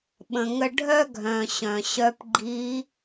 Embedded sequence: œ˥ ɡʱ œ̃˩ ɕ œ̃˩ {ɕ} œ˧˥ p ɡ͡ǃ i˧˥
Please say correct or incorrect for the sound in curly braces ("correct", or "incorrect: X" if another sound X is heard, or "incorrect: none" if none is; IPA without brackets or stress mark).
correct